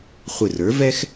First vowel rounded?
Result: no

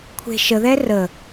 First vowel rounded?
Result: no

